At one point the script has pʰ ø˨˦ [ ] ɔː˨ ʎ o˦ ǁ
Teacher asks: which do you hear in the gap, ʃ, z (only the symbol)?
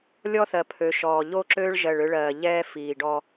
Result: ʃ